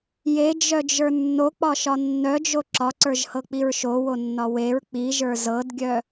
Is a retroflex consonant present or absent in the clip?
absent